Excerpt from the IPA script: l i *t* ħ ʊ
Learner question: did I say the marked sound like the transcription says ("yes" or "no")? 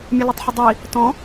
no